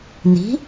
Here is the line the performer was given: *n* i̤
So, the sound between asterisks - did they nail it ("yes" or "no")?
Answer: yes